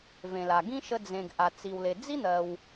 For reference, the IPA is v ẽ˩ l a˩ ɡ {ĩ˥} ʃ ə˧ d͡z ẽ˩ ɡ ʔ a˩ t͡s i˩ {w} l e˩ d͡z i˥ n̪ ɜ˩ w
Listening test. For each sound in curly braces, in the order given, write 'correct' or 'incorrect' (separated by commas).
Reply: correct, correct